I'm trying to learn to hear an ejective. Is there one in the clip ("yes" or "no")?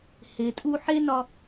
yes